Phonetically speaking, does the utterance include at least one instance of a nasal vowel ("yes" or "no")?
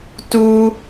no